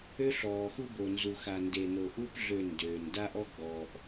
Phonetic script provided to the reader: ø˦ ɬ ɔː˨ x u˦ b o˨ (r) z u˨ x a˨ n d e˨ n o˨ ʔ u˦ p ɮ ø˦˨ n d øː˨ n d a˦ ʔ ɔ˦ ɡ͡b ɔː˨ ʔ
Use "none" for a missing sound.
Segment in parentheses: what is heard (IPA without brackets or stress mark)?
n